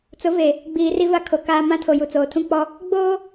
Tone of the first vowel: rising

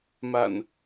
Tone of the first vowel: low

